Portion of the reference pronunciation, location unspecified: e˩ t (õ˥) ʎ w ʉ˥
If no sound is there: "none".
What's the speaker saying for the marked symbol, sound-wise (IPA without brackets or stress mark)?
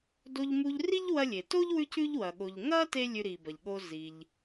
o˥